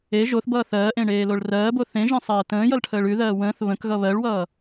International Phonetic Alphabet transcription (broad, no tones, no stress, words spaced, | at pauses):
e ʒoθbʌː θɜːʔẽ ɳeːloɭrɜːbo θẽʒẽ sˤɜːtə̃ːjʌl ʈʰəːɭʉðɜː wə̃ːθ βə̃kɣʌ βɜɭwʌː